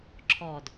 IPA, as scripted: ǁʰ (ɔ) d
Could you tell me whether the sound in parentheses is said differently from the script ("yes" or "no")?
no